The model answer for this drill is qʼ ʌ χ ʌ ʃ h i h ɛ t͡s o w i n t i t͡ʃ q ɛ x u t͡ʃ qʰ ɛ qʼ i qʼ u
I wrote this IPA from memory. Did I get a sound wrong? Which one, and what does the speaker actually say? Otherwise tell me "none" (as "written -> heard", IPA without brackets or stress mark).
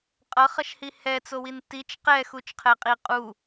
none